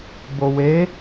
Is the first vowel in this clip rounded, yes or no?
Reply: yes